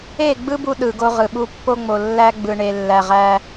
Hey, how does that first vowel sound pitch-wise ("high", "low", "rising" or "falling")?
falling